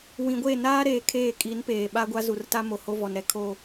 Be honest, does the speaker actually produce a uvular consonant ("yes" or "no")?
no